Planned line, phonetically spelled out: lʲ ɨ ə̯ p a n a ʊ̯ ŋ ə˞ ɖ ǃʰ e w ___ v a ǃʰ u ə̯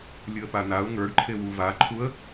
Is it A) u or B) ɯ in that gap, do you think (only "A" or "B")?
A